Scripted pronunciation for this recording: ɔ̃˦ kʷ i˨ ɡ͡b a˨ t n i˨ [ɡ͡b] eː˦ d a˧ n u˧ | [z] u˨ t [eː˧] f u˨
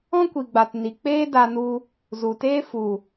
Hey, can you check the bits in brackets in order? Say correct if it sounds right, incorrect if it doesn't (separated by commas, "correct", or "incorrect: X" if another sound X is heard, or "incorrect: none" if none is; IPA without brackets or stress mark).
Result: incorrect: k͡p, correct, incorrect: eː˦